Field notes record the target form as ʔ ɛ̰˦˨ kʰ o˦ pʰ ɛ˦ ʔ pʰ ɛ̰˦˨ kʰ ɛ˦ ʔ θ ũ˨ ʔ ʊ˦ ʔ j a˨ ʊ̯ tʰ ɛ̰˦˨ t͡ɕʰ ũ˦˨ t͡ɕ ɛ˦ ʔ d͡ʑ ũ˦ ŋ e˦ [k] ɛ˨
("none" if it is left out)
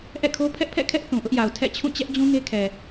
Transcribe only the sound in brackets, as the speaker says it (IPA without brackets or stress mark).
kʰ